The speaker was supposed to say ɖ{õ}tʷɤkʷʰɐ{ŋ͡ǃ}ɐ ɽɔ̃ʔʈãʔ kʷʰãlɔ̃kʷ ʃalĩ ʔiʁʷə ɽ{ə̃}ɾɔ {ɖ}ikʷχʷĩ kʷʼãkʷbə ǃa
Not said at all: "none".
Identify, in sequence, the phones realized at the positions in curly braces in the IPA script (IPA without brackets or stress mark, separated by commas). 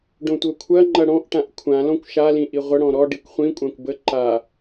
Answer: õ, ŋ͡ǃ, ɔ̃, ɖ